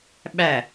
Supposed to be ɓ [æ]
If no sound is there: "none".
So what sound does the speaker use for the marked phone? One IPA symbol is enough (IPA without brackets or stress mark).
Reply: æ